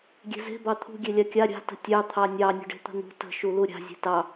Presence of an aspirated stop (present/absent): present